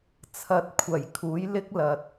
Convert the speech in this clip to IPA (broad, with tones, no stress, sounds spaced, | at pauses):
t͡sʰ ɐ˨˥ t̚ kʷʰ ɐ˨˩ j kʰ uː˨˥ j l ɪ˥ k̚ l ɐ˨ t̚